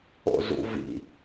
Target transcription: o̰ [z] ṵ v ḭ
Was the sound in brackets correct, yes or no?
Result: yes